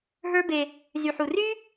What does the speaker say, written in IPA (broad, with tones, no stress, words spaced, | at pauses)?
ɦə˞˦be˧ | zy˨ħu˨ry˦